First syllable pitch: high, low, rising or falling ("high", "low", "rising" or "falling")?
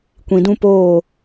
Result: low